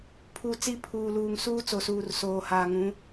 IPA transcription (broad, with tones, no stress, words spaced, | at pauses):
pʰu˨ t͡si˦ pʰuː˨luː˨ŋ suː˦ t͡so˨suː˨r soː˨haː˨ŋũ˨˦